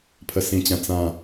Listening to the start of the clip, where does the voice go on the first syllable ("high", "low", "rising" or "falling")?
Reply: low